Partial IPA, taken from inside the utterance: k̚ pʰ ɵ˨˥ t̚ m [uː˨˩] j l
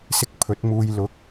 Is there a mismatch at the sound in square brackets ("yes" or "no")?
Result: yes